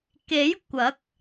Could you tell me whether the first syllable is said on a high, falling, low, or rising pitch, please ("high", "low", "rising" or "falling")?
rising